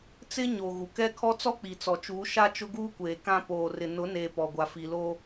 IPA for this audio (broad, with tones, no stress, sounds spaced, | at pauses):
t͡s ɪ˦ ɲ o˨ ɣ u˨ k ɛ˦ kʰ ɔ˦ t͡s ɔ˦ k͡p i˨ t͡s ɔ˨ t͡ʃ uː˨˦ ʃ a˦ t͡ʃ ʊ˦ ɡ uː˦ kʷ eː˨ k ã˦ p oː˨ r ɪ˨ n ʊ˨˦ n eː˨ p ɔ˨ ɡʷ a˨ f i˨ l oː˦